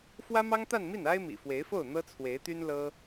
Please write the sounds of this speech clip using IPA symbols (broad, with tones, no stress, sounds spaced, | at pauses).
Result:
f w ä˥ m ɑ˥ ŋ t̪ a˥˧ n m i˥˩ n a˥ ɪ̯ m ḭ˨˩ f w e˧˥ ɪ̯ f o˥˩ ʊ̯ n̪ ɤ˥ t͡sʰ w e˧˥ ɪ̯ t̪ y˥ n l ɤ˥